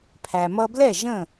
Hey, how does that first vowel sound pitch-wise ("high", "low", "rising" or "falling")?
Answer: low